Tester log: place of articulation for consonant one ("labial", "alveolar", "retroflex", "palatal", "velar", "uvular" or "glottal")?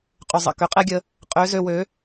uvular